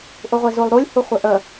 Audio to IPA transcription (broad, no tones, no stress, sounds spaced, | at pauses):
ʔ u ʁʷ e z u lˠ ɾ u lʲ h u χʷ e ʔ ə